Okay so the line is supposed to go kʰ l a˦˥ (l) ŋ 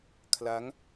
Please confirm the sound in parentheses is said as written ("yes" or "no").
no